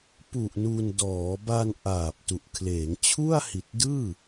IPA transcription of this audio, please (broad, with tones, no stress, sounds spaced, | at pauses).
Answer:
p u˨˩ ʔ n u˧ n d ɔː˩˦ b a˧ n ʔ aː˨˩ p̚ t u˨˩ ʔ kʰ l eː˩˦ ŋ t͡ɕʰ u˥˩ a̯ h i˨˩ t̚ d ɯː˥˩